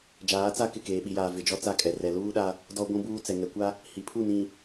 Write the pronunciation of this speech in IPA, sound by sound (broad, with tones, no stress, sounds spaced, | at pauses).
d͡ʒ aː˨˦ t͡s a˦˨ k ɪ˦˨ k eː˨ ɓ i˨ j aː˨ v ɪ˨ d͡ʒ ɔ˦ t͡s a˦ kʼ ɛ˨ r ɛ˨ l uː˦ ɗ a˦ | d ɔ˦ ɡʷ ũ˦ b uː˦ t͡s ɛ˨ ŋ ɛ˨ kʷ a˦ | h i˨ pʰ u˦˨ n ĩ˨